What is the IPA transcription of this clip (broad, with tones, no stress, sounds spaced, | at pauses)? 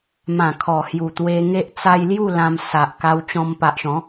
m ã˨˩ kʰ ɔ˨˩ h j u˨˩ t̪ w e˧ ŋ e˦ ʔ t͡s a˧ j l j u˥˧ l ã˧ m s a˨ ʔ k a˧ w t͡ɕ ɔ̃˧ m p a˨ ʔ ɕ ɔ̃˨˦